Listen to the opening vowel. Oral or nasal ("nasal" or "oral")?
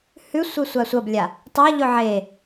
oral